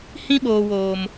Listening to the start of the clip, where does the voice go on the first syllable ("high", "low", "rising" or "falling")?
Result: high